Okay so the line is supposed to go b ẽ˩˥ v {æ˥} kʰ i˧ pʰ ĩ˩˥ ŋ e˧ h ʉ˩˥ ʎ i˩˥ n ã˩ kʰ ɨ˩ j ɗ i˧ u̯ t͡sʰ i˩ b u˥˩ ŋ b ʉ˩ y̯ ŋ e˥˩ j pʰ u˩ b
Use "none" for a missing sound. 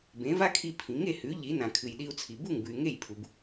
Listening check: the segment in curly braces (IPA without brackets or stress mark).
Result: a˥